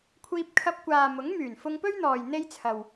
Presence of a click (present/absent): absent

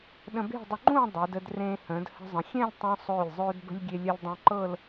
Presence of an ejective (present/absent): absent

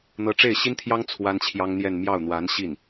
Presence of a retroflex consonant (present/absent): present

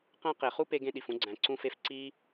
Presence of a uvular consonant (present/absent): present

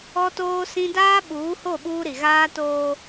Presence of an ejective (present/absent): absent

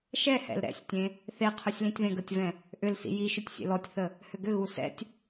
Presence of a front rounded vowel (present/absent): present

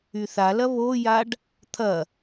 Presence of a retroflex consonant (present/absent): present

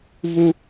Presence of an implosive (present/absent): absent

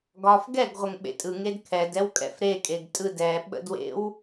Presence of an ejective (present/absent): present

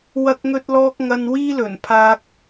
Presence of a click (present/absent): absent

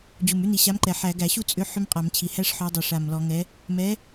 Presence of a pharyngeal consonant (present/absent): present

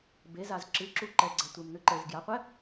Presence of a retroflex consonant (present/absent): absent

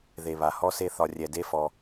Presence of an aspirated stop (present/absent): absent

